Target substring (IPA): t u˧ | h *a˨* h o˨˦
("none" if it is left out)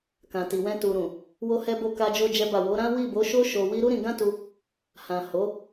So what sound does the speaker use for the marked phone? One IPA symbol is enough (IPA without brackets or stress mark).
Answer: ã˨